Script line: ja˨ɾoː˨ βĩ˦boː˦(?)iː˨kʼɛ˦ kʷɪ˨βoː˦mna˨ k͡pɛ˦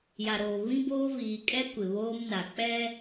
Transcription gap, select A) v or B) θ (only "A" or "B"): A